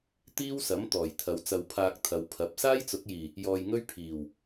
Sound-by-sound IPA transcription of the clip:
t̪ iː˥ w s ɐ˨˥ m t̪ ɔː˨˩ j t̪ʰ ɐ˨˧ w t͡s ɐ˧ w pʰ aː˧ k̚ t̪ʰ ɐ˨˧ w pʰ ɐ˨˥ p̚ s aː˥ j t͡s ʊ˨˥ k̚ j iː˨˩ | j ɔː˧ j ŋ ɵ˥ ɥ pʰ iː˨˩ w

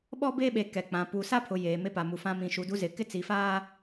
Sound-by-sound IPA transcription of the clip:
ɓ ɔ˦ b eː˦ ɓ e˨ k ɛ˨ k͡p ã˨ p u˨ s a˦ pʰ ʊ˨ j eː˨ m e˦ p a˨ m u˨ f ã˦ m ĩ˨ ʃ u˨ d u˦ z ɪ˨ k ɪ˦ t͡s i˨ f aː˦

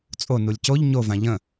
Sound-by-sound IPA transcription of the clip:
t͡sʼ o n u lʲ c o ʎ ɲ o v ã ʎ ə̃

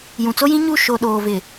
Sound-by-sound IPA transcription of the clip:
j ũ˨ t͡s o˦ j ĩ˦ ɲ u˦˨ ʃ o˨ ɗ oː˨ v ɪ˨

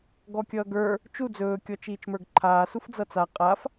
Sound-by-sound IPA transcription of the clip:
ɡ ɔ kʲ ʌː ɡ ə˞ | t͡ʃ u d͡z ɵː kʲ ɔ t͡ʃ iː t͡ʃ m ə˞ ɡ ǃʰ aː s u f d͡z ʌ t͡s a qʼ a f

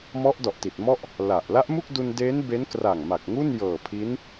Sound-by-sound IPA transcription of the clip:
m ɔ˦˥ ʔ d ɔ˨˩ ʔ t i˨˩ t̚ m ɔ˥˩ ʔ | l a˨˩ ʔ l a˦˥ ʔ m u˥˩ k̚ d u˧ n d e˦˥ n b e˦˥ n k r a˨˩ ŋ m a˨˩ k̚ ŋ u˥˩ n j ɤː˨˩ pʰ i˦˥ n

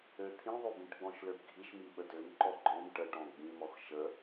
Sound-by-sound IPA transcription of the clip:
ø t̪ʰ ĩ ðˤ ø b ĩ ʈ ɡ͡b ɔ̃ ʃ l ø b ɡʱ i ʃ m i ɓ ə d ø m ǃ ɔ ɡ͡ǃ ɔ̃ m ʈ ə ʈ ɔ̃ ɡ͡b ĩ m ɔ x ʃ ə

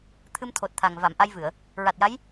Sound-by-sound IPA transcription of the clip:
t̪ʰ ɨ˧ m t̪ʰ o˨˩ t̚ t̪ʰ a˨˩ ŋ v a˨˩˨ m ʔ a˧ j v ɨ˨˩˨ ə̯ | ɹ a˨˩ t̚ j a˧˥ j

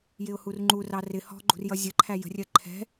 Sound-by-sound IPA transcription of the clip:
j ɪ ʊ̯ h u r ŋ͡ǃ u r ɑ r ɪ h ɔ̤ ɡ͡ǃ ṳ r j ʌ zʲ ə ǃʰ æ j ə̤ rʲ ɜ ǃʰ ɛ̤

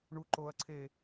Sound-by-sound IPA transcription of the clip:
ɳ u ǃ oː ɐ̯ ǀʰ eː

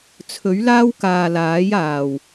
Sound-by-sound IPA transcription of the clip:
t͡sʰ ɵ˨˥ ɥ l aː˥ w k aː˨ l aː˨˥ j aː˨˩ w

